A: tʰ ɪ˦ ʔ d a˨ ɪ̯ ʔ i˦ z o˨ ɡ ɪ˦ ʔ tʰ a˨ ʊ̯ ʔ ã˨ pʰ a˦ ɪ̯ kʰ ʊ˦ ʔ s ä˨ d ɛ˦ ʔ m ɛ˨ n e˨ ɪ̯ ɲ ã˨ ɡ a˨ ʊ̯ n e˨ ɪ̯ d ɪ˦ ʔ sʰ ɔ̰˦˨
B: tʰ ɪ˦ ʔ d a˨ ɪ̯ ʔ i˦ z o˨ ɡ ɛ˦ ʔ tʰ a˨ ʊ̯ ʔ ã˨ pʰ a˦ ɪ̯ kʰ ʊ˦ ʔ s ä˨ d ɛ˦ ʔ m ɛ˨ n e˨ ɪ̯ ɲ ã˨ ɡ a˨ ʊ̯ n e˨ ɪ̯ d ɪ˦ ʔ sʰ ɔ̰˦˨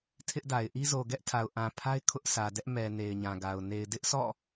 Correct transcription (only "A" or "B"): B